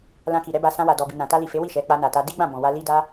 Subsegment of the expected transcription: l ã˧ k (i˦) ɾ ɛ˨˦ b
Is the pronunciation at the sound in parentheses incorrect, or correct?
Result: incorrect: i˨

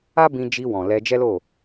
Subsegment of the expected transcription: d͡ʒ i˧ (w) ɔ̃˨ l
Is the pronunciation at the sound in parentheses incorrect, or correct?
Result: correct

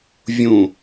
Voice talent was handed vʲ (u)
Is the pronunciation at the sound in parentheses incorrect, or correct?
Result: incorrect: ũ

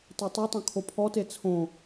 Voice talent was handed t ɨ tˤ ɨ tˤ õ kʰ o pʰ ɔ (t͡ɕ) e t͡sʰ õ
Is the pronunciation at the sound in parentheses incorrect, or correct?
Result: incorrect: t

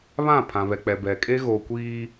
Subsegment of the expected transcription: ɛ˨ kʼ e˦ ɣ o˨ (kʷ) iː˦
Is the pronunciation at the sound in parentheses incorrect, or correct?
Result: correct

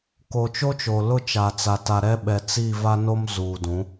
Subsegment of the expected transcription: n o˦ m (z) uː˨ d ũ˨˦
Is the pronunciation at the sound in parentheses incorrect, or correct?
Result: correct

